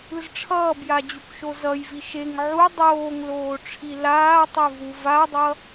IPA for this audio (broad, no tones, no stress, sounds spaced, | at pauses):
ɯ z ʈ͡ʂʰ ʌː b j a d͡ʑ u k ʃ o z ʌ j v i ʃ e ŋ ʕ u dˤ oː ŋ l oː ʈ͡ʂʰ i l aː tˤ e v u v a dˤ ʌ